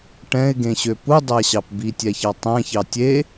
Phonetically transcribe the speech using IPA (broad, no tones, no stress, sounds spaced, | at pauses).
ʈ ɛ̃ ɪ̯ ɡ ẽ ɕ ø p u dˤ æ ɕ ɑ p b i tʲ ɛ ç ɑ tˤ æ̃ ç ɑ tʲ e